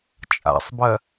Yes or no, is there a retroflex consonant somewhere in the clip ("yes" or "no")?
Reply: no